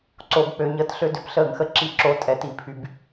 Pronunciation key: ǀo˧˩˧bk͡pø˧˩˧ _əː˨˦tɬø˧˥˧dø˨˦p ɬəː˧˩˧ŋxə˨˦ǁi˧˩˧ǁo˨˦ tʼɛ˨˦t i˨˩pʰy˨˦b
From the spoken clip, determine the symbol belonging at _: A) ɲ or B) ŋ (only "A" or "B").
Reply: A